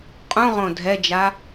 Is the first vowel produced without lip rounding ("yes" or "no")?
no